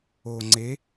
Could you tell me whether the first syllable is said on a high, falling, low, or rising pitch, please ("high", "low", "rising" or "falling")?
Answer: low